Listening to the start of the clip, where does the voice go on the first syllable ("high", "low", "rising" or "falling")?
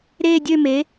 falling